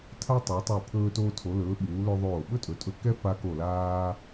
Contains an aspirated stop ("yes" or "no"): yes